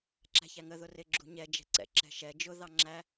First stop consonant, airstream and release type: click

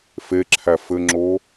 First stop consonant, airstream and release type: click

